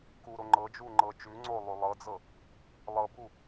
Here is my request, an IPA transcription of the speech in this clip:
k u ɾ o ŋ͡ǃ ɤ d͡ʒ u ŋ͡ǃ ɤ t͡ʃ ʉ ŋ͡ǀ o lˠ ʉ lˠ ɤ d͡z ɤ | lˠ ɤ b u

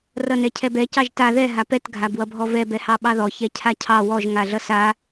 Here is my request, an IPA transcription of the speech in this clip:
r ʌ n ɛ cʰ ɛ b ɛ c ɑ ʒ t a ð ɛ ɦ a p ɛ t ɡʱ a b w ʌ bʱ ɔ v ɛ b ɛ h ɑ ɓ ɑ ð ɔ ç ɛ cʰ a cʰ ɑ w ɔ ʒ ŋ a ɮ ʌ s a

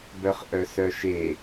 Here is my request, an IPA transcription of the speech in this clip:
b œ χ ʔ œ s œ ʃ e

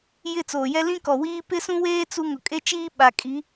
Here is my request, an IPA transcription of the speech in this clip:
j ɪ˦˨ t͡s oː˨ j ɛ˦ l ĩ˦ k ɔ˨ w iː˦ p ɪ˦ s ũ˦ w eː˦ t͡s u˦ ŋ ʊ˨ kʼ e˦ t͡ʃ iː˦ ɓ a˨ kʼ i˨˦

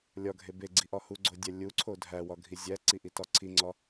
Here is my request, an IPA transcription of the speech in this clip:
lʲ ɒ ɡʱ e b e ɡ͡ǀ i ʔ ɒ h u ɡ͡ǀ o dʲ æ lʲ u ǀʰ o dʱ æ w ɒ ɡʱ i zʲ æ ǀ i ʔ i t ɒ ǀʰ i ŋ͡ǀ ɒ

